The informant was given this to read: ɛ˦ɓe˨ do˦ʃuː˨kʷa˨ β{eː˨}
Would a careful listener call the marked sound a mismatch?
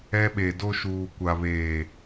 no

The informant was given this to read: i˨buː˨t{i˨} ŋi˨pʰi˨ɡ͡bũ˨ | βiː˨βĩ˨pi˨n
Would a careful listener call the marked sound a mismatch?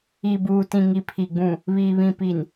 yes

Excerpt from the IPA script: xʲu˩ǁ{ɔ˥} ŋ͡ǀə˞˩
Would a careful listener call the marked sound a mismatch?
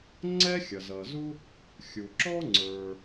no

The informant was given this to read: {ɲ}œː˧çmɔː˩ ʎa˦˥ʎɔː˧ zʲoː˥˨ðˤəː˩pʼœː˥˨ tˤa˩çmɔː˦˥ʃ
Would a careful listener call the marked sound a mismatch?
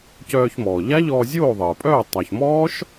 yes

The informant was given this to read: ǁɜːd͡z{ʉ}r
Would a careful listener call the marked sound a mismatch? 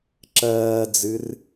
yes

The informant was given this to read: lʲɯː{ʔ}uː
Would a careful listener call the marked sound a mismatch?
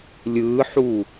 yes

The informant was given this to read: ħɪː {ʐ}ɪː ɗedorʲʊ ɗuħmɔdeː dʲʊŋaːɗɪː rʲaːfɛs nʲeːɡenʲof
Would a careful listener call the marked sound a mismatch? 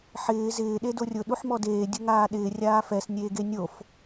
yes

